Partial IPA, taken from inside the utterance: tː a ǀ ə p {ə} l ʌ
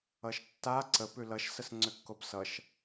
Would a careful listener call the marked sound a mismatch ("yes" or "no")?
yes